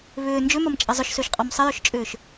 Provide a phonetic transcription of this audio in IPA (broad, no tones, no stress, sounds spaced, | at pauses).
β ʏː n d͡ʒ ʏ m ɐ m t͡ʃʼ ɐ zˤ ʏ ʃ s ø ʃ qʼ ɔ m sˤ ə j ø ʃ t͡ʃʼ ʏː ʃ